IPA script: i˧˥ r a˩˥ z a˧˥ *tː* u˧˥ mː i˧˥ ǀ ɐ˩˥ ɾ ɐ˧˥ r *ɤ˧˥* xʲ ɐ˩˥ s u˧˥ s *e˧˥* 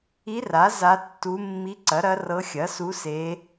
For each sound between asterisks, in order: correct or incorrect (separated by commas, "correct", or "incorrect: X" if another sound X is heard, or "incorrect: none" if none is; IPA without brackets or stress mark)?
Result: correct, correct, correct